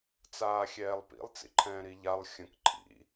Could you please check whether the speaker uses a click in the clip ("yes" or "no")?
yes